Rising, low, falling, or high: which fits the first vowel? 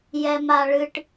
high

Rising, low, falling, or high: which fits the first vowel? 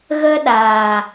high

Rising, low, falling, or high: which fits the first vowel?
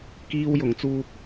high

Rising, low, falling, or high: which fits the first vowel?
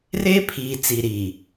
high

